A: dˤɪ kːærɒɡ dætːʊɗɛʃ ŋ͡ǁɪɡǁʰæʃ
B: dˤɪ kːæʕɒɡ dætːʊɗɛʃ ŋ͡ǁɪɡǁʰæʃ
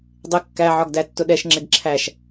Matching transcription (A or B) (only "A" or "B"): B